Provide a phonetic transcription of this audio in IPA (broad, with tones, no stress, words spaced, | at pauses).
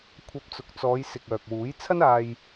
kʷʰɐ˧p̚t͡sʊ˨k̚ t͡sɔː˨˧jsɪ˨k̚œː˨k̚wuː˨˥j t͡sʰɐ˥naː˧j